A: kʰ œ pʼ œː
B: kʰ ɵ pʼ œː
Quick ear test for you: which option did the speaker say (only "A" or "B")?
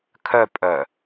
A